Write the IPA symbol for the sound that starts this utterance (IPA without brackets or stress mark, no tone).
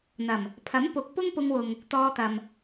n̪